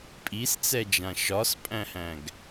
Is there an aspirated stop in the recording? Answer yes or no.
no